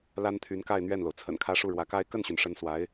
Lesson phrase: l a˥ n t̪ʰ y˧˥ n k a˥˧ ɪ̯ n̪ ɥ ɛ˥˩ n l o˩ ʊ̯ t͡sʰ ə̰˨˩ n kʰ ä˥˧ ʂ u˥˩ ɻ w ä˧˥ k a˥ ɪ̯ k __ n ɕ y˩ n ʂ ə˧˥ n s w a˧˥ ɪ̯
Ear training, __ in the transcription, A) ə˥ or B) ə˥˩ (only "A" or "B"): B